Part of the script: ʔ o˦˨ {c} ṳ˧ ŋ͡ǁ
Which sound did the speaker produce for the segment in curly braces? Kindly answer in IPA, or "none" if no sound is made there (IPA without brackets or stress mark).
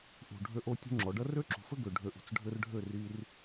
tʲ